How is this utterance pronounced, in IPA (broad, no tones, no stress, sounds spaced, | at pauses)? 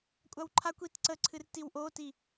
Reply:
kʷʼ a w ǃʰ a kʷ i t ǀ ə ǀʰ ɨ r t i w ʔ o t i